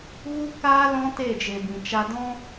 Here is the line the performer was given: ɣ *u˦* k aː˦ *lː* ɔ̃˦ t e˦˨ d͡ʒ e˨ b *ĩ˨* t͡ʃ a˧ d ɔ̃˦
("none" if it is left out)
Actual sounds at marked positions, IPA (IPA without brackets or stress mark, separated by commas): u˦, l, ĩ˨